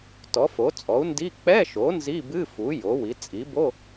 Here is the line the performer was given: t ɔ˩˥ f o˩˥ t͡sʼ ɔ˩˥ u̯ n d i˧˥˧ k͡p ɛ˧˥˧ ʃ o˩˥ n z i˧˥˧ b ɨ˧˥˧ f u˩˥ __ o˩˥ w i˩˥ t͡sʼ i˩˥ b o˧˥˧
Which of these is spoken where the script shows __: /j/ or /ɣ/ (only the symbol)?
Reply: j